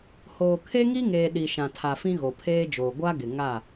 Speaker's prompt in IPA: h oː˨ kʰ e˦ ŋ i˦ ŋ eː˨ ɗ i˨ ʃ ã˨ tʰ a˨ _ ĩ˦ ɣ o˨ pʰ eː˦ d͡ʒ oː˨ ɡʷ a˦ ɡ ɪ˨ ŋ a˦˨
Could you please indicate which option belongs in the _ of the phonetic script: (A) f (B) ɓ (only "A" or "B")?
A